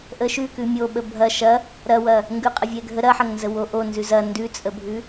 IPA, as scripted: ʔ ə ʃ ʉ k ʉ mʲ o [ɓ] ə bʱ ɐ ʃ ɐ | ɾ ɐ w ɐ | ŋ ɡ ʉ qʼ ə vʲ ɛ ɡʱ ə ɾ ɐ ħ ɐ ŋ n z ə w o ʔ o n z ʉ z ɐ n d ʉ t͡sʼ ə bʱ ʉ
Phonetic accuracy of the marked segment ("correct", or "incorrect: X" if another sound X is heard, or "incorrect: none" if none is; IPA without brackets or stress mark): correct